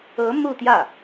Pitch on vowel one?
rising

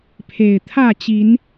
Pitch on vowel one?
low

